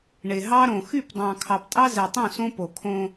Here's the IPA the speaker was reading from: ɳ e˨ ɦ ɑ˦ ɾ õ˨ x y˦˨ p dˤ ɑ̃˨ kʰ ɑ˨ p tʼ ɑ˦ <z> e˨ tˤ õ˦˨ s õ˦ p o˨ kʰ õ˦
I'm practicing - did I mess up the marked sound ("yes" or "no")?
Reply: no